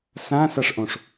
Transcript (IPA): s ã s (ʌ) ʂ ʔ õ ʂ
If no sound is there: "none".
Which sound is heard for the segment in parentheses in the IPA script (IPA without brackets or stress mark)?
a